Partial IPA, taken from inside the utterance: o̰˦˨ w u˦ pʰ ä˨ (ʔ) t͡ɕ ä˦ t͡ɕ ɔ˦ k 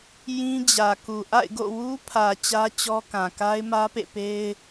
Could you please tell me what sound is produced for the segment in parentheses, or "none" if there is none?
none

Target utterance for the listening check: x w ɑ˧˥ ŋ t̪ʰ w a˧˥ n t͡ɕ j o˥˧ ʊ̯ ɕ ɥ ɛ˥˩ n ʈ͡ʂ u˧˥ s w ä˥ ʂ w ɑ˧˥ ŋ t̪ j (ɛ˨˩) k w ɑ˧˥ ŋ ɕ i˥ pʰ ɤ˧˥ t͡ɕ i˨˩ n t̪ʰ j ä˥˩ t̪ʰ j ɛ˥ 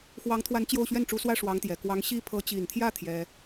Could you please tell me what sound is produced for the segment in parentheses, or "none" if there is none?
ɛ˨˩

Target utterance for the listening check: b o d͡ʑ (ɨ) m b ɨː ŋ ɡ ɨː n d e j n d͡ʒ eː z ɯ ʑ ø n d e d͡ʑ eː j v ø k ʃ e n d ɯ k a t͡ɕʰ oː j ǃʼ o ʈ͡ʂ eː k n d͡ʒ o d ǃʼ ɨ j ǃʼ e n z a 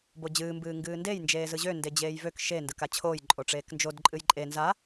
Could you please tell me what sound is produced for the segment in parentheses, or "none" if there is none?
ɨː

